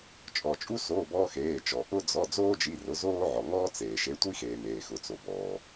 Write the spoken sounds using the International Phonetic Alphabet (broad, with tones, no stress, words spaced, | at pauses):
t͡ʃʼɔ˩t͡ʃʼu˦ so˩˧˩ bɔː˦xeː˩˧˩t͡ʃɔ˩ ʔʊ˦ d͡zɔ˩˧˩ d͡zoː˦d͡ʒi˩˧˩rʊ˩˧ zoː˦ʕɔ˩ŋɔː˦ t͡seː˩ ʃe˩˧tʷi˦xeː˩ meː˩xʊ˩t͡so˩bɔː˩